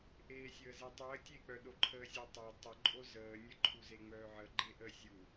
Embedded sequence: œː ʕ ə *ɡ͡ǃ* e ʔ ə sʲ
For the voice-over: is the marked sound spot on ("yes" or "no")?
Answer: yes